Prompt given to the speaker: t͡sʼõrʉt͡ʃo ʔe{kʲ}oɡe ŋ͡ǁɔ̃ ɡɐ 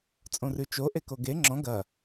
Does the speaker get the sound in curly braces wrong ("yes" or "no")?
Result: yes